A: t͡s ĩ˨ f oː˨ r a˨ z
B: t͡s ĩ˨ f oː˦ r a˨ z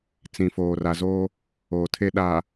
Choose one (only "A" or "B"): A